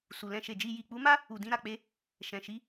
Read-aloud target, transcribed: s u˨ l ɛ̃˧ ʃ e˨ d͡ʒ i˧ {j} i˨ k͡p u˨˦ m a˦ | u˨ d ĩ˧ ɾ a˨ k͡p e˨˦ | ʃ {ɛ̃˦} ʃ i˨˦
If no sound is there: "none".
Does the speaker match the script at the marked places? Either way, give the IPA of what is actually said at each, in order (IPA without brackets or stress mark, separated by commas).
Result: j, ɛ̃˨